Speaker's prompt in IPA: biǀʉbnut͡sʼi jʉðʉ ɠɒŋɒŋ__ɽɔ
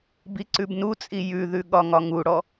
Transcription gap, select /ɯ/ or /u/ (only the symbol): u